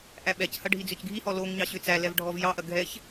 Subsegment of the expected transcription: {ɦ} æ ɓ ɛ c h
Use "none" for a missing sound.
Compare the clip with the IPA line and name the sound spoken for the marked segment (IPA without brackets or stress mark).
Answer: ʔ